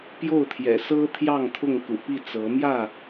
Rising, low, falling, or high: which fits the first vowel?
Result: falling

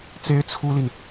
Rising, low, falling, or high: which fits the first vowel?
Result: high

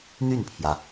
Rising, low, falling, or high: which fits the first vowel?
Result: falling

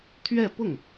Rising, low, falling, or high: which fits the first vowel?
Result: falling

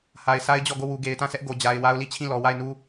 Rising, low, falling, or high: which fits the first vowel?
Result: low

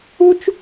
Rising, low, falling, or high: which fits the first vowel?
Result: high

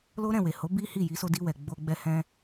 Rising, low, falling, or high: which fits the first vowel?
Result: high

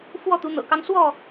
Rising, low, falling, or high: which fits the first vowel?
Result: falling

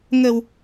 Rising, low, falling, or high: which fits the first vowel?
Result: low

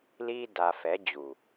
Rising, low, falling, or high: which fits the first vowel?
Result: high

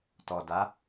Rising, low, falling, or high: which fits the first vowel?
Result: low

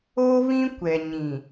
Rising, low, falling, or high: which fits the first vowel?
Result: high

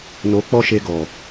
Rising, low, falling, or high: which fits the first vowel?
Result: rising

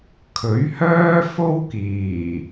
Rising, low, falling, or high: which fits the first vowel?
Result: rising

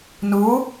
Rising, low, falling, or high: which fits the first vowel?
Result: rising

